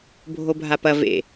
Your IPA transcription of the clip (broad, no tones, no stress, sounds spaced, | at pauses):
bʱ o bʱ a p ɐ v ḛ